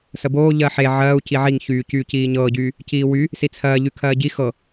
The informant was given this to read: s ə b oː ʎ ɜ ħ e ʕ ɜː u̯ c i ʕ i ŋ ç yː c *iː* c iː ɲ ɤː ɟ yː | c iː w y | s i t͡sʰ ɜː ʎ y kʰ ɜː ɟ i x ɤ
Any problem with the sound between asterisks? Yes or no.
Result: yes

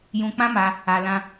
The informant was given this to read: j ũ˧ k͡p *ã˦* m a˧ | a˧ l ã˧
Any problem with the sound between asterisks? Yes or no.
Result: no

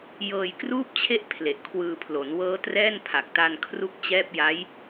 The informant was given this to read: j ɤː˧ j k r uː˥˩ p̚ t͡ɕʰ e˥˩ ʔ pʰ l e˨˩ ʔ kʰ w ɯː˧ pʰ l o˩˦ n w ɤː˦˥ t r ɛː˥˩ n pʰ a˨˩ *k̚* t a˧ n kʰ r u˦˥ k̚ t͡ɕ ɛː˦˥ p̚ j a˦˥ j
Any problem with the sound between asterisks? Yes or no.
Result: no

